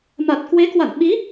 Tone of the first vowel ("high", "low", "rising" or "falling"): low